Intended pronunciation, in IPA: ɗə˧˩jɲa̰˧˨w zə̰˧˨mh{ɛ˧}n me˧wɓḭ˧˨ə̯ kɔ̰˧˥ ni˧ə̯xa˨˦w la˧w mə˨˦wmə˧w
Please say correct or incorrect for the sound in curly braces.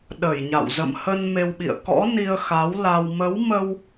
incorrect